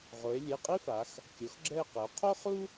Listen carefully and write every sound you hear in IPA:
ʁ o˩˧ e̯ lʲ e˩˧˩ qʼ i˥ f a˩˧ x | kʲ o˩˥ x ɡ͡ǁ ɛ˦˨ e̯ q ɘ˩˧ o̯ qʰ o˥ χ u˥

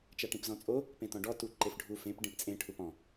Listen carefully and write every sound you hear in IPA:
t͡ʃ a ʈ ĩ p z ɔ̃ t͡sʼ o | p ẽ t ɔ̃ ɖ ɔ t u ǃ e f ɖʱ u f ẽ p ɖ ẽ p t͡sʼ ẽ ʈʰ u p ɔ̃

